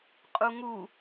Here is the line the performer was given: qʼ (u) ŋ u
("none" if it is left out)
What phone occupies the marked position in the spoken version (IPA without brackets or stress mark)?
u